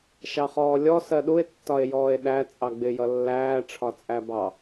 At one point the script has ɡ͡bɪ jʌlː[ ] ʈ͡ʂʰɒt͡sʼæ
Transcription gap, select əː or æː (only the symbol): æː